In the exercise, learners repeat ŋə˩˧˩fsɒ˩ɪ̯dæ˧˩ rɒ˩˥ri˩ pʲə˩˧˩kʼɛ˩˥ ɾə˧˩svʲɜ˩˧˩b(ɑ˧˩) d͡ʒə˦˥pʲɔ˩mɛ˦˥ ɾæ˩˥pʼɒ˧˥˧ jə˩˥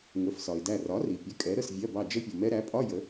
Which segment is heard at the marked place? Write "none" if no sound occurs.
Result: ɑ˧˩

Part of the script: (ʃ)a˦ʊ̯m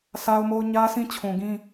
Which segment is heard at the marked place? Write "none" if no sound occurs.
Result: s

